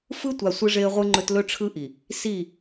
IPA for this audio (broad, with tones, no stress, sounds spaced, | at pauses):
f ɯ˦ tʷ a˨ sʷ ɯ˦ ʐ e˦ ə̯ ʁʷ ɯ˦ ŋ͡ǃ ɵ˦ t l ɵ˦ ʈ͡ʂʰ ɯ˦ ʔ i˨ | s i˦˨